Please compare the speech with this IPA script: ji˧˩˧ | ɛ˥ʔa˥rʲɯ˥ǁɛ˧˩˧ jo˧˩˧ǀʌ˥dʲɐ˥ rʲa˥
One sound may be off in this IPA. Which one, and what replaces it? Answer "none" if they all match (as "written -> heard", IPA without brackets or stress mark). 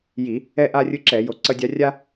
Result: ɐ˥ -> a˥